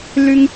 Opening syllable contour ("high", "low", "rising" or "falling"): low